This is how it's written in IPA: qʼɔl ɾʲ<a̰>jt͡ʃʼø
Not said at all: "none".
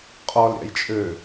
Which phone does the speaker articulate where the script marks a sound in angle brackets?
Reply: a̰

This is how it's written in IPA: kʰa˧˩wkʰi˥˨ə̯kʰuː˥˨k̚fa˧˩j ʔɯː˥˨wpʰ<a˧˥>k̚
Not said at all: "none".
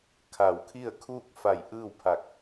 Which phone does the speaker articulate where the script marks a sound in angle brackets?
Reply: a˧˩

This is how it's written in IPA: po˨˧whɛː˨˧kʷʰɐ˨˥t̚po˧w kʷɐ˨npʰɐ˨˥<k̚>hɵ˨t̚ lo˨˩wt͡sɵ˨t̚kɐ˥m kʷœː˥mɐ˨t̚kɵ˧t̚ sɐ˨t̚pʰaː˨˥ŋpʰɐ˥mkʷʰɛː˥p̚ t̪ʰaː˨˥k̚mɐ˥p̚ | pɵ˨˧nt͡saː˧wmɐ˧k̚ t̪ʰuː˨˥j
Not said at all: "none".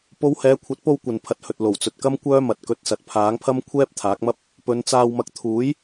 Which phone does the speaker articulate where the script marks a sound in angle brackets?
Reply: t̚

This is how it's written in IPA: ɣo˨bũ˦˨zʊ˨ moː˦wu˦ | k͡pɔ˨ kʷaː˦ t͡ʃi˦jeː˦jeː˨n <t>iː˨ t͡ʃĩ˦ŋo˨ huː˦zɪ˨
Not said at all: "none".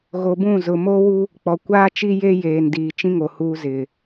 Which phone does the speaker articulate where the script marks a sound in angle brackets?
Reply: d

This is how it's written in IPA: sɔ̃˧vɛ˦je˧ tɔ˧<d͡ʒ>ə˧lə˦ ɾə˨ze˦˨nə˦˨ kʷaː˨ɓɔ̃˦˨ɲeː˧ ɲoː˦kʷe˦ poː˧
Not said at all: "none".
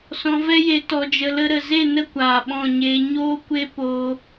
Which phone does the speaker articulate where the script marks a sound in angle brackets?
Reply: d͡ʒ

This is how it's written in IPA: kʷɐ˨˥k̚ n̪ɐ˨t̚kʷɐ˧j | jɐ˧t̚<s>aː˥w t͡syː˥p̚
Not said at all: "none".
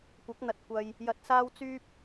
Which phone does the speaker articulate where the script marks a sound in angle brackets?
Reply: s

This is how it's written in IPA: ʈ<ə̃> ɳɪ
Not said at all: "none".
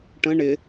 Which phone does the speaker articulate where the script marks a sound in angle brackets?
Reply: ə̃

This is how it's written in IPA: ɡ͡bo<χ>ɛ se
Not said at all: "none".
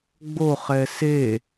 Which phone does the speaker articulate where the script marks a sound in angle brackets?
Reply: χ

